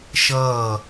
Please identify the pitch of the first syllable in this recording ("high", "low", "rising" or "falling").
falling